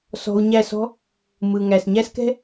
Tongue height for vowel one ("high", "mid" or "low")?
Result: mid